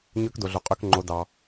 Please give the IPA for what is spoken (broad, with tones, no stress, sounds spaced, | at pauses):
ɲ ø˧˥ k d o˩ ɮ o˩ qʼ ø˧ k ŋ͡ǃ o˩˧ d ɑ˩